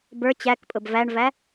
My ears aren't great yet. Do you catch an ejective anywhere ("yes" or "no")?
yes